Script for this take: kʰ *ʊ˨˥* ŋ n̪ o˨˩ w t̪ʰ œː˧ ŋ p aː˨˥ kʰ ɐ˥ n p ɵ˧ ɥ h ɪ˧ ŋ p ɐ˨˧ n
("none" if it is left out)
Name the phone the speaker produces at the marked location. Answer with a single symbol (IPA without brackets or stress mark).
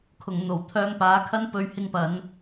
ʊ˨˩